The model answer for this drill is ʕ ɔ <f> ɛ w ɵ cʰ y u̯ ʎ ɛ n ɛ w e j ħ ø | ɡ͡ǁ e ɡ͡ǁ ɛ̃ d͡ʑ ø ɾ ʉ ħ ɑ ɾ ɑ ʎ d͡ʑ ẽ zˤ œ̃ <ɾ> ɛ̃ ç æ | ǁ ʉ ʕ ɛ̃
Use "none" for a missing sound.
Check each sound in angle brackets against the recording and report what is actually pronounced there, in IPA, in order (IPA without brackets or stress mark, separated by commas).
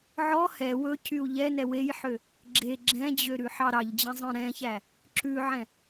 h, ɾ